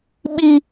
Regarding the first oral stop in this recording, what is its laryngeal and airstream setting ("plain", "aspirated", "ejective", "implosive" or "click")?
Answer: implosive